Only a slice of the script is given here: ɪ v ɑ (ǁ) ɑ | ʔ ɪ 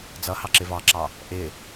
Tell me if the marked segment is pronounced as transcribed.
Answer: yes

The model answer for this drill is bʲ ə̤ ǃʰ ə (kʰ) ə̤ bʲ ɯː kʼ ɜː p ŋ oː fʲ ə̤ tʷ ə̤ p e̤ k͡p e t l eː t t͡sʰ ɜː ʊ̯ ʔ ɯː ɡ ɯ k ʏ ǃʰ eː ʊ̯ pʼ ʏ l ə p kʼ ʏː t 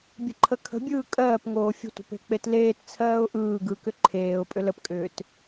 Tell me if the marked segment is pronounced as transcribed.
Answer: yes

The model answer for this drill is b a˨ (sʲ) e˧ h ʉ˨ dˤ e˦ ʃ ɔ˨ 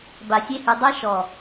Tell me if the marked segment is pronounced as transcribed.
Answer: yes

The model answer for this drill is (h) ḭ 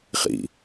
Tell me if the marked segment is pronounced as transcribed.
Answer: no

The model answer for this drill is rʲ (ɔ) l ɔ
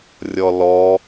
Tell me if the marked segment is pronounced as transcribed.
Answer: yes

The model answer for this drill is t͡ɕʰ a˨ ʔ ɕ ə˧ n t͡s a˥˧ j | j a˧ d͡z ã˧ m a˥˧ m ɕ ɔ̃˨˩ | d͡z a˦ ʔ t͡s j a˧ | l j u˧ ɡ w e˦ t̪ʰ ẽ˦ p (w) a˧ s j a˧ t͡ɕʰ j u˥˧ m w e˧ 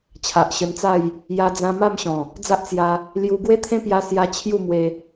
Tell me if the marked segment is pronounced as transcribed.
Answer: no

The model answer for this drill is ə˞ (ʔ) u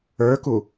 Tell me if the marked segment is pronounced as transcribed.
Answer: no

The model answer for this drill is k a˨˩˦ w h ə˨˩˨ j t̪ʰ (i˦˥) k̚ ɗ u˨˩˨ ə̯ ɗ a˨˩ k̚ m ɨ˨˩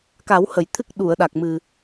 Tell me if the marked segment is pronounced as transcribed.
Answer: no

